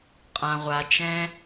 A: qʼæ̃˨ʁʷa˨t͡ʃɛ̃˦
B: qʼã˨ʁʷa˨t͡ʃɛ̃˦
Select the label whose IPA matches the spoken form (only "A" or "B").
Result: B